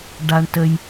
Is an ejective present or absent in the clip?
absent